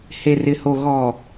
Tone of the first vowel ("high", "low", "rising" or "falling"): low